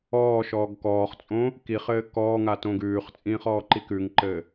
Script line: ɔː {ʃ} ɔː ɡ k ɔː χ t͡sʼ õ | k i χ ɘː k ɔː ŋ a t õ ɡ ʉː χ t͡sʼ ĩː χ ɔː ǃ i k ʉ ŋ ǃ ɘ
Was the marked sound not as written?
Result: no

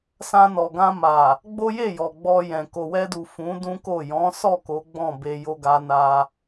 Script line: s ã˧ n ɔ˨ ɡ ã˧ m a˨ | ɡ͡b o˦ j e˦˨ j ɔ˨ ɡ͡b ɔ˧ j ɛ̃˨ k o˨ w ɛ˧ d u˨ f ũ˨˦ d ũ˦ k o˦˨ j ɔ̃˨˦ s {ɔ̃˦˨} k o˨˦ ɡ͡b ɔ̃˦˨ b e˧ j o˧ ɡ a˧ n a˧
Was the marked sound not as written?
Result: yes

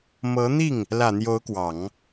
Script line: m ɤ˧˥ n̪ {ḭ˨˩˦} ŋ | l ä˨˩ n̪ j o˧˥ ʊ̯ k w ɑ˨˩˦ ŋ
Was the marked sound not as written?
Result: yes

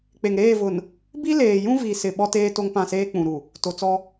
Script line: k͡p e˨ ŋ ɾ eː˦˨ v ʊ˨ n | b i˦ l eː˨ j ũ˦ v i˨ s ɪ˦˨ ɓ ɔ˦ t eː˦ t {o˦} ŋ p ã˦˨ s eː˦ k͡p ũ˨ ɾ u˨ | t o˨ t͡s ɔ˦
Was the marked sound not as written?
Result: no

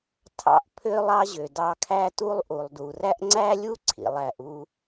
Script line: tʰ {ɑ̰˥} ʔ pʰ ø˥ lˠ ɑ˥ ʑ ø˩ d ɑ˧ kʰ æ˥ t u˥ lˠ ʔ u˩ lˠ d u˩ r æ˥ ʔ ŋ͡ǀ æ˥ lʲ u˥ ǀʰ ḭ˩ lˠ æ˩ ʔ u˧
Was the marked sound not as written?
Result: no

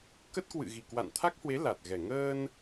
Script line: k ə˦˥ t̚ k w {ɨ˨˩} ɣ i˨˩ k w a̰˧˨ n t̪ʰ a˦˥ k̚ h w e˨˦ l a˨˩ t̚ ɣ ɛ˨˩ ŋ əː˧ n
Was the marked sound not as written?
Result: yes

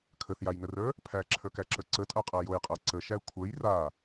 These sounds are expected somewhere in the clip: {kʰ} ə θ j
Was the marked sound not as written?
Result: no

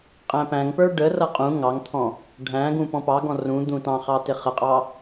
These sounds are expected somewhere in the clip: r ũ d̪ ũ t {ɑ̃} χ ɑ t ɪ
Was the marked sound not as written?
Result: no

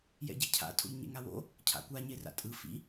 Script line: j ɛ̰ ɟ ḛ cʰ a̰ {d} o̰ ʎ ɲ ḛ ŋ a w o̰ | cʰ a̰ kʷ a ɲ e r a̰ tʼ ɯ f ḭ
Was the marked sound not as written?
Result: yes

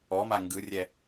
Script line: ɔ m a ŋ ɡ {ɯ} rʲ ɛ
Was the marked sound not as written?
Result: no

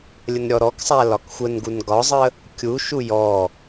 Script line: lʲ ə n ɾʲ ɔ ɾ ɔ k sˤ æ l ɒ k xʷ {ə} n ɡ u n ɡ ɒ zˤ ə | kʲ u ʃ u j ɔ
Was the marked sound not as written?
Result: no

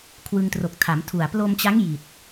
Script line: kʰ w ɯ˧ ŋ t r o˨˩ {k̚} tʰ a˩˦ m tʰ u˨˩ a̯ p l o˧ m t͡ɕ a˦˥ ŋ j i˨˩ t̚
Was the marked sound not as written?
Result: no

